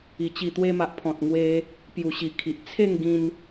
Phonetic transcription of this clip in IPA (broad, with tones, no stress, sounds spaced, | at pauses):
i˨˩ t͡ɕ i˨˩ t̪ w e˧ m a˨ ʔ pʰ ɔ̃˨ t̚ ŋ w e˦ | p j u˨˩ ɕ i˨˩ kʰ i˨ ʔ t͡sʰ e˥˧ ŋ ɡ ĩ˧ n